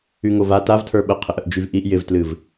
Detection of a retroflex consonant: absent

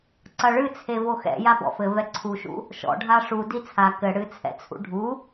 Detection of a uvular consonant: absent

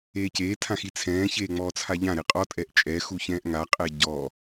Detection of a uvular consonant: present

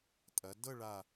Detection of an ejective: present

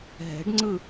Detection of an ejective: absent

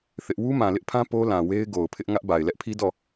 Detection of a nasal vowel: present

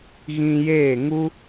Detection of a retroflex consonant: absent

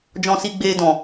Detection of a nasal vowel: present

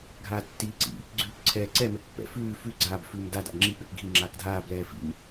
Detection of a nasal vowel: absent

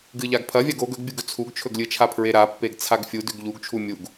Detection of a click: absent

